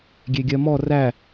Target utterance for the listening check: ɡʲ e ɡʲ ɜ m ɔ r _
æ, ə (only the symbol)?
æ